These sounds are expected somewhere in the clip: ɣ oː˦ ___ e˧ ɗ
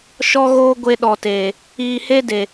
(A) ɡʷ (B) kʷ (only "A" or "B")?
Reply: A